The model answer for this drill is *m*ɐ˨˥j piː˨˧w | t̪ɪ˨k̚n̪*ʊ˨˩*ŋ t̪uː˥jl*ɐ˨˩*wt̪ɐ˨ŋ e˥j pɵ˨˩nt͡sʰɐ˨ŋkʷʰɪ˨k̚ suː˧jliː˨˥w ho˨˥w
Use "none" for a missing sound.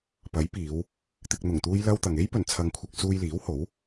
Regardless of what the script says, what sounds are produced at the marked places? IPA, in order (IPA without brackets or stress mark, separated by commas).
p, ʊ˨˩, ɐ˥